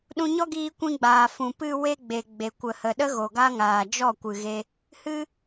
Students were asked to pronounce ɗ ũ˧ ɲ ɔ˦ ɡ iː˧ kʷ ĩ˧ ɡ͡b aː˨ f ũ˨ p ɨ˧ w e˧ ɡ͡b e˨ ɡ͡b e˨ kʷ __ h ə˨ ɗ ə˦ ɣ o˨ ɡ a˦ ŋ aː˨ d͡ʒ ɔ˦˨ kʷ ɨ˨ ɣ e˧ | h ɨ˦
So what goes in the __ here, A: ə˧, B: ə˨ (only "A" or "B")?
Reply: B